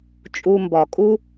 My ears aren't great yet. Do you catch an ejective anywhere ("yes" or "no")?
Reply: yes